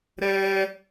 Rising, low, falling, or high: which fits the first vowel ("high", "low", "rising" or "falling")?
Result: high